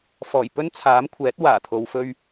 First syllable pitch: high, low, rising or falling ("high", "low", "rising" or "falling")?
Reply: low